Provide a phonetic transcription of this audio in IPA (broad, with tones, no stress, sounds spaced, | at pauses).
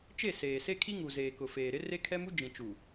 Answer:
t͡ʃ e˦˨ s eː˨ s e˦ kʰ i˦ ŋ u˨ z eː˨ k ʊ˨ f eː˨ ɾ ɪ˦ r e˦ kʰ ɛ˦ m u˦ d͡ʒ ĩ˨ t͡ʃ u˨